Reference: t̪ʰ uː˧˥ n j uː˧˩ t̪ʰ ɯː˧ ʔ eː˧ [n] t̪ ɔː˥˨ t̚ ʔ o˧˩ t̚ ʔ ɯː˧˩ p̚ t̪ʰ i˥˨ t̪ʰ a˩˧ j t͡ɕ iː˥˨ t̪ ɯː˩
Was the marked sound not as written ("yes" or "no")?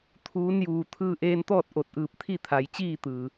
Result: no